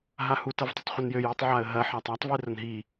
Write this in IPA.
ɦ a h u t ɐ v tˤ ə tˤ χʷ ɘ n j ø j i tˤ ʕ a ə̯ ɦ ɐ ħ a tˤ a tˤ v i r ə n ɦ i

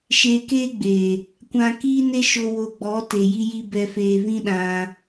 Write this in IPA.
ʃ eː˧ k eː˦ ɡ͡b eː˨ | kʷ ã˧ k iː˦ n e˦ ʃ o˧ w o˧ ɡ͡b ɔ˨˦ t e˨ j i˧ j i˧ b ɛ˧ f eː˧ v ĩ˦ ɗ ã˧

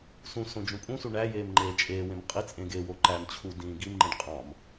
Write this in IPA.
s ũ s õ d͡ʒ ũ pʼ ũ s u ɳ æ j eː m ŋ͡ǃ eː t͡ʃʼ eː w ẽ m qʼ i t͡sʼ ẽ ɡ e w o ǃ æ m t͡ɕʰ u d ĩː ɡ i m ŋ͡ǃ ĩ ɖ qʼ ɑ̃ m

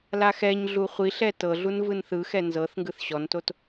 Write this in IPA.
l a x ɛ ɲ ɮ u χʷ i ɬ ɛ t ɤ ɮ u n v ɯ n θ ɯ x ɛ n z ɤ θ ŋ ɡ ɯ θ ɕ ɔ n t o t

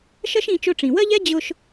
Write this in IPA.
ʃ ɜ˥ ʃ ĩ˧ t͡ʃ ʊ˧ ʈ͡ʂ ĩ˩ w ɜ˥ ʎ ɛ˥ d͡ʑ ʊ˧ ʃ

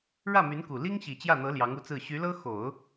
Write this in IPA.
ɻ ä˥˩ m y˧˥ n k u˨˩ l i˥ ŋ ɕ i˨˩ t͡ɕ j ä˥˩ n̪ ɤ˧˥ l j ɑ˧˥ ŋ u˧˥ t͡s ɹ̩˥˩ ɕ y˧˥ l ɤ˥ x o˨˩˦ ʊ̯

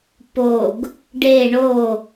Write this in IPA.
p o ɡ | ɖ e ɳ o

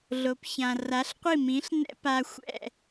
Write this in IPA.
ɮ o˩ p ç ã˩ r a˩˥ ɬ qʷ i˥˩ m ĩ˩˥ ɬ n ɛ̰˥ p a˧ xʷ ɛ̰˥˩

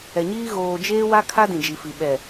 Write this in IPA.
ɛ˨ ɲ iː˦ ɣ oː˨ d͡ʒ eː˦ w a˦ kʰ a˦ d ĩ˨ d͡ʒ i˨ f i˨ ɓ ɛ˨

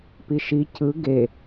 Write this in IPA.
p i ʃ i c ɯ ɡ e

